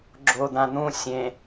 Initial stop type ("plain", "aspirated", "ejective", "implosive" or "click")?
click